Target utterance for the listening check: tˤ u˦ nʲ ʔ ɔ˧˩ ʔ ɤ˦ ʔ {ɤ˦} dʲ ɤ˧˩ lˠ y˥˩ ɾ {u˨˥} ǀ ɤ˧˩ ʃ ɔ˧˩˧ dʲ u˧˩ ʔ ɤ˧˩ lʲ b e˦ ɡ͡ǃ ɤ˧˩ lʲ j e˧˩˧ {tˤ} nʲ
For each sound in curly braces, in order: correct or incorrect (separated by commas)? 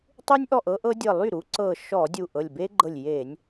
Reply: correct, correct, incorrect